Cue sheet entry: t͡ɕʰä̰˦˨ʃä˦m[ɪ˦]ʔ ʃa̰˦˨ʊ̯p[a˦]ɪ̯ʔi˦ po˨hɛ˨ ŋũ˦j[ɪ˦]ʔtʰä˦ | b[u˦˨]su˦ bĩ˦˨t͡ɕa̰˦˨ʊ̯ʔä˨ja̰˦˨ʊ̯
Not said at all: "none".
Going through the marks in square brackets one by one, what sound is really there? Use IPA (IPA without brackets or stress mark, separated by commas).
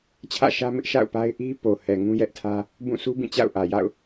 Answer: ɪ˦, a˦, ɛ˦, ũ˦˨